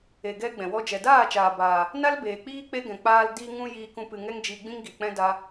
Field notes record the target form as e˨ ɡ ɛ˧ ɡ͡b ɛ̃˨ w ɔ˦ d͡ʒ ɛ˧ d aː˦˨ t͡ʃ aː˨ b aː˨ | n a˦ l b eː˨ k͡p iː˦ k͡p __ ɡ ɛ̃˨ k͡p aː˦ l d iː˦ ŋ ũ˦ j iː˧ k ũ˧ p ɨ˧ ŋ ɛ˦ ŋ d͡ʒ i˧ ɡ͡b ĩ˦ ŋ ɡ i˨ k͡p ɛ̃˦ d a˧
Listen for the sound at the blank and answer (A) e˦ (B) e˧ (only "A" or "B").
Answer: A